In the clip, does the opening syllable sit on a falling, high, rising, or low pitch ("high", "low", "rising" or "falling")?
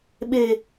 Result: low